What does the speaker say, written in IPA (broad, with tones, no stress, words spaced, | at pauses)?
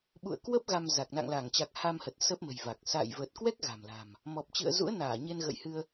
ɓṵ˧˨ə̯kwə˦˥p̚ ɣa˧mza˨˩k̚ na̰˧˨ŋla˧˩ŋt͡ɕa˨˩k̚ ha˧mhə˨˩t̚ sə˦˥p̚mə̤˨˩jva˨˩k̚ sa̰ː˧˨jvə˨˩t̚ kwɛ˦˥k̚ ɣa̤˨˩mla̤˨˩m | mɔ˨˩p̚t͡ɕɨ̰˧˨ə̯zṵ˧˥ə̯naː˧˩ ɲe˧nɣə̰˧˨jhɨ˧ə̯